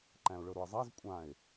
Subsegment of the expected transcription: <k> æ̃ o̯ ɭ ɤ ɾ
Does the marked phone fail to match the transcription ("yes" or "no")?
yes